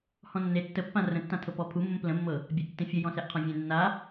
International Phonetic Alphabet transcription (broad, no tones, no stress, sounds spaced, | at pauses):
h ɔ̃ nː e tː ə pː ã r ə̃ tː ã tʰ ɤ p ɔ pʰ u mː ə̃ p l ə̃ mː ɤ | bʲ a ʔ tː ẽ fʲ ə j ɔ̃ s ɛ ʔ qʰ ɔ̃ vʲ ẽ nː a